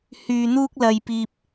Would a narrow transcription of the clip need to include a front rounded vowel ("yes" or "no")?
yes